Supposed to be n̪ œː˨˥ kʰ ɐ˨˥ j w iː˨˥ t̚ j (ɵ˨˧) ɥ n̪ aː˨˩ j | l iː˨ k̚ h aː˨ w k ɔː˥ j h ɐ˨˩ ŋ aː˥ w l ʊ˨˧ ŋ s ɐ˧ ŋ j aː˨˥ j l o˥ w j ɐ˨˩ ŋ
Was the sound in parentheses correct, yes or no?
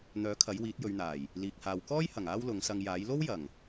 yes